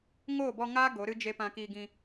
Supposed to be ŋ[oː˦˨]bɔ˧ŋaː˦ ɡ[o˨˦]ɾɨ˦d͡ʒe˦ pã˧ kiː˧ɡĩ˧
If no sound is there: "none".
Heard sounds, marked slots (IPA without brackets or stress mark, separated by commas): oː˦˨, o˨˦